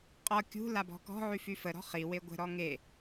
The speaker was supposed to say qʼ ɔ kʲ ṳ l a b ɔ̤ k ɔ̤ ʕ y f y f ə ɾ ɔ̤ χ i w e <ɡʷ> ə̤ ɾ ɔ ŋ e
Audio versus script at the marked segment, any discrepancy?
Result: no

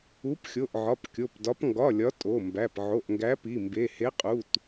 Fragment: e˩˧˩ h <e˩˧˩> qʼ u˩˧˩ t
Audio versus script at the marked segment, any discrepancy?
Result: yes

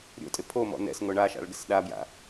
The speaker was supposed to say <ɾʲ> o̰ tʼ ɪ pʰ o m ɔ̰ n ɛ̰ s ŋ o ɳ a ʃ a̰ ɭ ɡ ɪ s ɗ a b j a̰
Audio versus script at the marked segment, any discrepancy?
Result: no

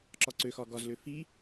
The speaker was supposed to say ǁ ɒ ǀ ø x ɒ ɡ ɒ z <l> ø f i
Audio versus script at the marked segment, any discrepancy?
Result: no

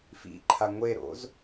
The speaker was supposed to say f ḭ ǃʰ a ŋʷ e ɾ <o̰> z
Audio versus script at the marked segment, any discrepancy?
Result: no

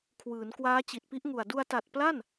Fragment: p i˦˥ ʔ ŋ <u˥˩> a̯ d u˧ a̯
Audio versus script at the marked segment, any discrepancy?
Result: yes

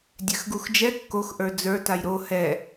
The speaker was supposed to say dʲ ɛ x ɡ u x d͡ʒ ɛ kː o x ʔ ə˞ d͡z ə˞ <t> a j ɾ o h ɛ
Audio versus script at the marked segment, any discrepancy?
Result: no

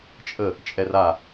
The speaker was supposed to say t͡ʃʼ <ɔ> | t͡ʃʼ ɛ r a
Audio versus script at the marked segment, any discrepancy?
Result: yes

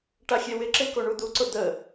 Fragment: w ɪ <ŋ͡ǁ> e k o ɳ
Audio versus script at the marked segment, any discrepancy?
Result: yes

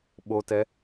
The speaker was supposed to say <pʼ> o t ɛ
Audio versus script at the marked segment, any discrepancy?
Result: yes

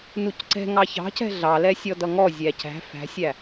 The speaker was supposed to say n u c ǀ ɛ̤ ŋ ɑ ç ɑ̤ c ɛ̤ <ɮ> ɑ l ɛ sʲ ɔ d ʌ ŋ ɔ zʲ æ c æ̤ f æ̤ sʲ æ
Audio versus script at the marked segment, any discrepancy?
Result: no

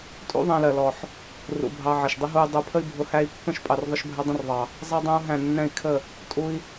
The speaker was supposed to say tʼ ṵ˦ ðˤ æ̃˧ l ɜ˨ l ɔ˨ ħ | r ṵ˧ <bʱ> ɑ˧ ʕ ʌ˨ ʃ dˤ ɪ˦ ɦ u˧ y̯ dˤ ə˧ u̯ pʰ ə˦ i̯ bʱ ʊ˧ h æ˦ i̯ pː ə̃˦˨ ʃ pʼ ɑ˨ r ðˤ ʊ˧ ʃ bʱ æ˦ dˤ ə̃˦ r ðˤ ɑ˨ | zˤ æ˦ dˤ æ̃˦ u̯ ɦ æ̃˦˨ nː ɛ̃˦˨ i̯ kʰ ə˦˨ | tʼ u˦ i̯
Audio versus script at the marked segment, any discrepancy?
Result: no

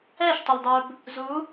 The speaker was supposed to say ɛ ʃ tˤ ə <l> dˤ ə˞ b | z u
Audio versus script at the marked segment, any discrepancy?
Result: no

